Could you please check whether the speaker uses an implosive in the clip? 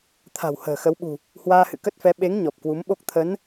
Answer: yes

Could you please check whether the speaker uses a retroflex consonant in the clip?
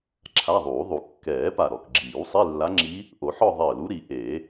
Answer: no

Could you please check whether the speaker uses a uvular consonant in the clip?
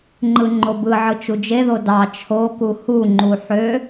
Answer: no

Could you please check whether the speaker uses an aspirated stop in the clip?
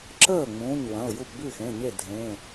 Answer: no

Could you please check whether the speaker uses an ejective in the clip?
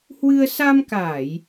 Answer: no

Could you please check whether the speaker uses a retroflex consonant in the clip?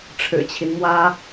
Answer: yes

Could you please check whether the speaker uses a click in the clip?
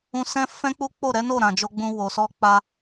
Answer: no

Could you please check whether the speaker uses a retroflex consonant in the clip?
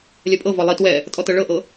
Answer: yes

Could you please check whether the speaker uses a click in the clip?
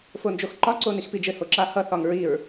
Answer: yes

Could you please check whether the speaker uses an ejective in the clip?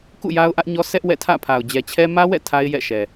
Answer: no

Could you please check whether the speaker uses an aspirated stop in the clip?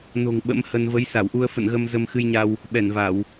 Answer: no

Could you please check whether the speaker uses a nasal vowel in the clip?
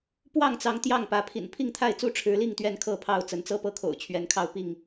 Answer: no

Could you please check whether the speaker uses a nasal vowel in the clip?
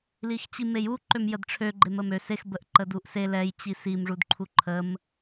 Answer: no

